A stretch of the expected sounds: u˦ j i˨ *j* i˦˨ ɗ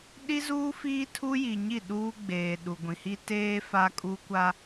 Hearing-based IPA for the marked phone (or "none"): ɲ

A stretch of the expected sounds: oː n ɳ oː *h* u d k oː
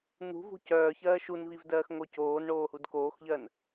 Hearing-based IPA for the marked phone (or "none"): h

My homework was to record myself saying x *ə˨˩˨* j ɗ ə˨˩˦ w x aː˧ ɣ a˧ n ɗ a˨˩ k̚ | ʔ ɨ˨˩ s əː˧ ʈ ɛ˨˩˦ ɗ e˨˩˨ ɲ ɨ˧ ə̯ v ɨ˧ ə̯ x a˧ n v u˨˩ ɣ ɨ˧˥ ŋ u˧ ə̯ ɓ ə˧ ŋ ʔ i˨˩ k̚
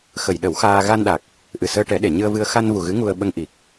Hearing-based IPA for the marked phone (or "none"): ə˨˩˨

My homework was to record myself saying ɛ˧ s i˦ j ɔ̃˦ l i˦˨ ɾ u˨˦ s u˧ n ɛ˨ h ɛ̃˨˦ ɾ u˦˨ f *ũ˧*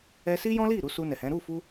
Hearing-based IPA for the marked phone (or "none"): u˧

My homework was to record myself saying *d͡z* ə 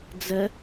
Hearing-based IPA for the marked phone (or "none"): d͡z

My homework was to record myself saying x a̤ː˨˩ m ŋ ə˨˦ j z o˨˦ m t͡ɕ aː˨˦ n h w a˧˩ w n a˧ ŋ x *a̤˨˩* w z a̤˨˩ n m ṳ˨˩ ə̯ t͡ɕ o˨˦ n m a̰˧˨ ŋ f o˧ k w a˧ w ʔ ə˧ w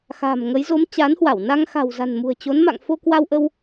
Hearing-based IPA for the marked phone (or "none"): a̤˨˩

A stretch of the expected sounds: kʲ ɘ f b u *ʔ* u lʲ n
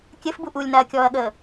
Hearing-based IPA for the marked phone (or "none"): ʔ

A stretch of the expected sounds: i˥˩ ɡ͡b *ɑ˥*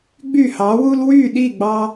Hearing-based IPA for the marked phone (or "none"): ɑ˥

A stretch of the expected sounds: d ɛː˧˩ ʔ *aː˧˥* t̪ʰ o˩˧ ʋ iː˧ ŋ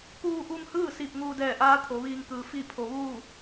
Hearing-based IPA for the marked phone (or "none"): aː˧˥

